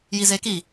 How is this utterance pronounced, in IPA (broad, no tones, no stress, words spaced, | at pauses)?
jizeki